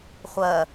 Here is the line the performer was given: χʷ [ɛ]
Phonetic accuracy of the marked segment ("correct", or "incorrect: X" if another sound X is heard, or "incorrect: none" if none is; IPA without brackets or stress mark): incorrect: ɜ